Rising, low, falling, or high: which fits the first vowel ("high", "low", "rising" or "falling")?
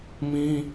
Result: high